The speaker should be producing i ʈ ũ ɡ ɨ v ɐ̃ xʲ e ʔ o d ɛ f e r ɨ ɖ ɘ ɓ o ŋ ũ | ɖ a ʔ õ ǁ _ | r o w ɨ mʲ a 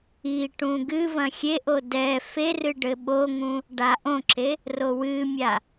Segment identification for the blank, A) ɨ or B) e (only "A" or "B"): B